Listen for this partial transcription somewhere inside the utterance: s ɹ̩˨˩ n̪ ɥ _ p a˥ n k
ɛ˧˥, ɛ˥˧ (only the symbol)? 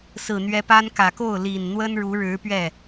ɛ˧˥